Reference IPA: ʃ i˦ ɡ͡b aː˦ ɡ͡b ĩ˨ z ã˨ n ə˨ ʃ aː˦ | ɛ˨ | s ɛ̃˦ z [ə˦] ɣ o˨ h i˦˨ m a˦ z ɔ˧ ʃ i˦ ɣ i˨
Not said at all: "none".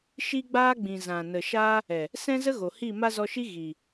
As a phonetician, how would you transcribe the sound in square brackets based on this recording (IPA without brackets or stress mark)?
ə˦